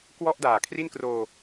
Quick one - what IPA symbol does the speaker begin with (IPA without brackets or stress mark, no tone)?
k